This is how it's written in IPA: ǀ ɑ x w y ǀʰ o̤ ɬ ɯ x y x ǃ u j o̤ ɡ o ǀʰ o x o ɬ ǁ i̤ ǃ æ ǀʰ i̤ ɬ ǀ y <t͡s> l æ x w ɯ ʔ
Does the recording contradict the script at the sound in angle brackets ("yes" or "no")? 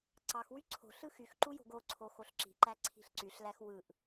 yes